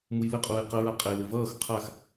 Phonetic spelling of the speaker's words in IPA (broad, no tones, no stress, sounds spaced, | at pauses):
m u j l ɘ qʼ uː j q ə ɹ a qʼ e l ɘ v ʌː x qʰ a x